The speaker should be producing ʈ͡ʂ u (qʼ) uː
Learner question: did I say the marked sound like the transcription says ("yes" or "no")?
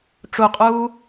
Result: yes